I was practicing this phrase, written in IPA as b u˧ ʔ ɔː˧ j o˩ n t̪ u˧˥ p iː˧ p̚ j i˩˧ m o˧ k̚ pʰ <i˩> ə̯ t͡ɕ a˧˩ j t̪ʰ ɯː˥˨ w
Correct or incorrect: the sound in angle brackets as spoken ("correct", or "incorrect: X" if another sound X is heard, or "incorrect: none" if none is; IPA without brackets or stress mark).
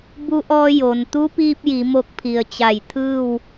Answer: correct